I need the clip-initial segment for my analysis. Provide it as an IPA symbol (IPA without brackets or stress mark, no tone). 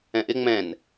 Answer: ɛ̃